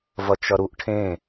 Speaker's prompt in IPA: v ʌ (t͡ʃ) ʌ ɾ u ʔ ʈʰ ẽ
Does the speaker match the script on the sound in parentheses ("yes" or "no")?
yes